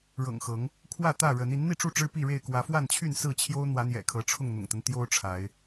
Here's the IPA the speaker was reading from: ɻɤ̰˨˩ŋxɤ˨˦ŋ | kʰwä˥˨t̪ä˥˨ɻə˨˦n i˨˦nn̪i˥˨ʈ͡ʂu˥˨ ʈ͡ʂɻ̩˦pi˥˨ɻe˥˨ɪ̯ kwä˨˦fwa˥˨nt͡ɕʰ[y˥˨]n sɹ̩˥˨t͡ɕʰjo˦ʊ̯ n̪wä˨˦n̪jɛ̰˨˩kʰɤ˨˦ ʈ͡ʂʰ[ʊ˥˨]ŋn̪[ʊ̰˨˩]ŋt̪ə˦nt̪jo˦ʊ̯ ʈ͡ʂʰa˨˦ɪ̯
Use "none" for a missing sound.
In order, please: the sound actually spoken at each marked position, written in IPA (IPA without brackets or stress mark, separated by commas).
y˥˨, ʊ˥˨, ʊ̰˨˩